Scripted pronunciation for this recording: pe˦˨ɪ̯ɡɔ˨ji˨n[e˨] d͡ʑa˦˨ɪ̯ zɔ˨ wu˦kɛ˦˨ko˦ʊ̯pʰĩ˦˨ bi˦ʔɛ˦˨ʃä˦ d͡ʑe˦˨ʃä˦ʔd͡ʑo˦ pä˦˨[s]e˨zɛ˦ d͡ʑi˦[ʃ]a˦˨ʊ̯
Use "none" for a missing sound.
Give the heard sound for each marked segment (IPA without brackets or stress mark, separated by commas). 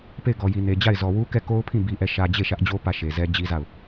e˨, ʃ, z